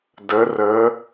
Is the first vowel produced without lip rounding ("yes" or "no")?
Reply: yes